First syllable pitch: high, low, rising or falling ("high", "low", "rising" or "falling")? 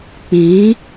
rising